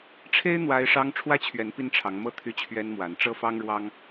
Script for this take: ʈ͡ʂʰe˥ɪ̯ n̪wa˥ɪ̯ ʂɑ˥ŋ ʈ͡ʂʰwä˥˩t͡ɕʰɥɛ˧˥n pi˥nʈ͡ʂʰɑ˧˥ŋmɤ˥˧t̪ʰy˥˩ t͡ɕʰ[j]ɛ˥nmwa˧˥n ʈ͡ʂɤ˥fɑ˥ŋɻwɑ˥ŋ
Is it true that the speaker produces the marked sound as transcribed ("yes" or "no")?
no